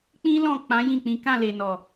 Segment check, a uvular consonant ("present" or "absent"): absent